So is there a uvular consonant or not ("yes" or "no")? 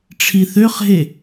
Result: yes